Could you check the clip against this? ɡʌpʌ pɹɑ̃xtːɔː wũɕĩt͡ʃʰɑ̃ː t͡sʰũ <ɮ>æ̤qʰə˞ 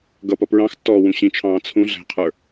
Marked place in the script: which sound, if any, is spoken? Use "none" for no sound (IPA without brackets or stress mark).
ɮ